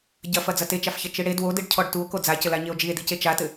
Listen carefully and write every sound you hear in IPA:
ɟɐfɐ d͡zɐtet͡ʃafçɐ t͡ʃɨɽe dwodɨɖ cʰɔɖtuo̯ kod͡zacɘla ɲeo̯d͡ʒie̯dice t͡ʃatɘ

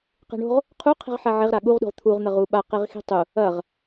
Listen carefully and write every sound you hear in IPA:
qe̤ɳo̤ʁ | qʰuqʰi̤ʁ ħaʕeʁɾa ɠuʁɗṳʁ t̪ʰuʁ n̪ɐʁuɓa qeʁxi̤tˤu | ɐʁ

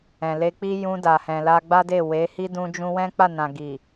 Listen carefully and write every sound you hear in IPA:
ɛ̃˨le˧k͡pi˦ jũ˧da˨hɛ̃˨ la˧ɡ͡ba˦de˦˨ we˨˦hi˦ dũ˦d͡ʒũ˦ wɛ̃˦k͡pa˦˨nã˨ ɡi˨

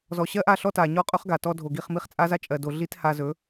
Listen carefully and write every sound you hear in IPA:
zɔ˨ɕɜ˦ʔa˦˨ ɬɔ˦ta˨ɲɔ˦ qʼɵ˦χɡa˨tɔ˧ dʱo˨ɡi˦˨χmi˦χ t͡sʼa˦za˦ t͡ʃʼɜ˨do˨ ɮi˦tha˧zɵ˨˦

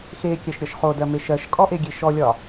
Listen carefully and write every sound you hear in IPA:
xekʲɜʃɾʲɒʃ χodɜme ʃɜʃkʼɔʔeɡʲe ʃɔlʲɒ

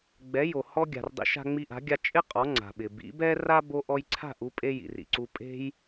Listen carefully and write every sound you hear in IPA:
ɡ͡bɛ˩˥jo˩ hɔ˧ɡʲa̤˩rdˤḭ˩˥ ʃa̤˧ŋ͡mi˧ʔa̤˩˥ɡʲa˧ t͡ʃʼɪ˥ qʼɔ˩˥ ŋ͡ǀa̤˩ɓɪ˩ bḭ˩˥bɛ˥ ra˥ bo˧ʔɔ˧jǀʰa̤˥˩ʔ u˥pʼe˥ jḭ˩rḭ˩ǀu˧pʼe̤˥j

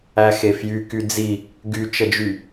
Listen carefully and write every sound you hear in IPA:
æxefjy kyd͡zi | ɡyt͡ʃəd͡ʒy

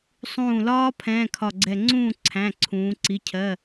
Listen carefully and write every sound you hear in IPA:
sˤũː˧˩lɒː˦˥ pʰɛ̃ː˧˥˧kʰɒ˧˩ɡ͡ǀɛ˧˩ ŋ͡ǀũː˥˨ ǀʰæ̃˩˧˩ ǀʰũː˩˧ǀi˩˧˩ cʰɜ˩˧˩

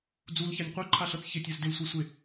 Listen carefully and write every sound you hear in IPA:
d͡zulçanʲ qʷœǃʰaɬɤt͡s çɪtʲœz dɪlsʷesʷe

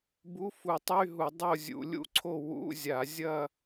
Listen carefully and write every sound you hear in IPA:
bu˧˥˧fu˧˩˧tˤy˧˥˧ɦu˧˩˧ dˤo˥˧zʲṵ˧˩˧lʲṵ˥˧ǀʰo˥˧ wṵ˧˥˧zʲa˧˩˧zʲɐ˥˧

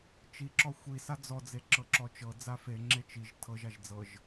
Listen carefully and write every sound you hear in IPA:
t͡ʃiǁɔ xʷisa d͡zɔd͡zeǁɤǁɔ t͡ʃɤd͡za feŋ͡ǁe t͡ʃiʒ tʰɤʒaʒ d͡zɤʒ

